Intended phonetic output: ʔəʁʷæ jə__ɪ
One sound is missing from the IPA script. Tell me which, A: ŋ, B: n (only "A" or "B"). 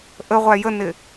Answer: B